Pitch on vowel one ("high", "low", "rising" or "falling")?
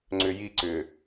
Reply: low